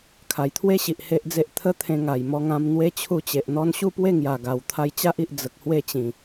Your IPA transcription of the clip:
kʰa˨˩jt̪ʰwe˦ɕi˨ʔ he˦ʔd͡ze˦ʔ t̪ʰə˦t̪ʰẽ˧ŋa˨˩j mɔ˧ŋã˧m n̪we˦t͡ɕʰu˥˧t͡ɕe˨ʔn̪ɔ˦n ɕu˥˧pwe˥˧ŋja˨˩ ɡa˨˩w t̪ʰa˧jt͡ɕa˦ʔi˨ʔ d͡zə˨k̚ hwe˥˧t͡ɕĩ˨˩

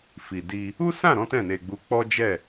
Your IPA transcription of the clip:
fi˨di˧ | u˦sã˦˨ɾɔ̃˨˦ tɛ̃˦˨ne˧ɡ͡bu˧ k͡pɔ˦d͡ʒɛ˦˨

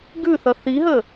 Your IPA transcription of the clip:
ɡʉθʌ θiɦə

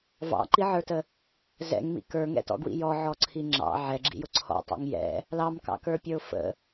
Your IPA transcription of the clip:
vɑ̰ǃiʕə˞tə | zɛ̰ŋmḭ kə˞ŋɛ̰tɔ̰ɡwḭ jɔʕɔǀʰi ŋ͡ǁɑ̰ ʕɛɡ͡ǁḭjʊ ǀʰɔ̰tˤḭŋ jɛ̰ | lɑmkɑ̰kə˞pʲə˞ʊ̯ fə̰

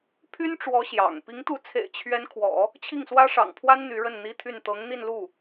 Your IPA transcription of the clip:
pʰy˥nʈ͡ʂwɔ˧˥ ɕjɑ̰˨˩ŋ pi˧˥ŋt̪u˧˥t͡sʰḛ˨˩ɪ̯ t͡ɕʰɥɛ˥n kʰwɔ̰˨˩˦ | t͡ɕʰi˥˩ŋswä˥ʂɑ̰˨˩ŋpʰwa˥n n̪y˧˥ɻə˥˩nn̪i˥t̪ʰy˥˩n t̪ɤ˧˥ŋn̪i˥˧nlu˥˩

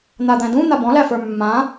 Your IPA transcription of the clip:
n̪ad̪æ̃dũ n̪abɔ̃læfə˞ mːã

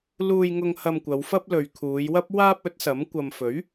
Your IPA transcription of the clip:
luː˧jŋʊ˧ŋ hɐ˧mkʷɐ˨˧wfɐ˥p̚ lɵ˨ɥ kʰuː˨˧jwɐ˥p̚ waː˥p̚ɵ˨˥t̚sɐ˨˥m kʷɐ˨mfɵ˨˥ɥ

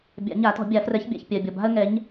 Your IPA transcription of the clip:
bʲa̰˨˩˦ɲa˨˩˦tɔ̤˨˩˦ bʲa˨˩˦frɛ˨˦ç bʲa̰˨ç pʲɜ˨bʲɔ˨ ba̤˦ə̯ŋɛ˨˦ɲ

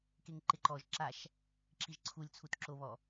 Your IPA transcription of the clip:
keŋǃɪǃɔʒ ǁaʃ | ǁiʒǀʰulʲ t͡sʰutǁo βɔ

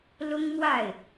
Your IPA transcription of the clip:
lʊ˥ŋmwa˥˩ɪ̯

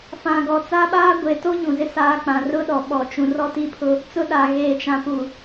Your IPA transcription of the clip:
fã˨ɡɔ˨ t͡sa˦ɓaː˦ ɡʷe˨to˦ ɲũ˨zɪ˦saː˦k͡pã˨ rʊ˦ɗɔ˨ɓɔ˨t͡ʃũ˨ rɔ˦ti˦pʰʊ˦ | t͡sʊ˦ɗa˨ ɣeː˨t͡ʃã˨pu˨

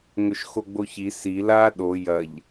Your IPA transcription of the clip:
ŋɵʃxoɡ͡boçi si la ɗo jɐʎ

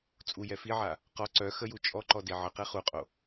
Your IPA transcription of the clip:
t͡sʼu jɛfiʕa | qɔ ǀœ xəju t͡ʃʼɔǃɔ deʕəqe χuqʼo

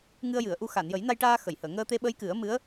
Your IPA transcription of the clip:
ŋɨ˧ə̯jɨ˨˩˨ə̯ ʔu˧ xa˨˩˨njə˨˩˦jna˧jʈaː˧ xə˨˩˨jhəː˨˩˨ ŋəː˧t̪e˧ ɓə˧˥jkɨ˨˩˦ə̯ mɨ˧˥ə̯

